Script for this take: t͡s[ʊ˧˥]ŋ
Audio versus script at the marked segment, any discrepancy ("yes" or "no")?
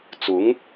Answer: no